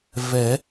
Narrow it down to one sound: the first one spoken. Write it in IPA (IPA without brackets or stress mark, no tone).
v